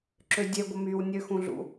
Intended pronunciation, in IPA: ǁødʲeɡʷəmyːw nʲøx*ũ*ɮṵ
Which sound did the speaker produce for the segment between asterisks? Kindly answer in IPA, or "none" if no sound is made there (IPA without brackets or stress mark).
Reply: ũ